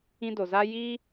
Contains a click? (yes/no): no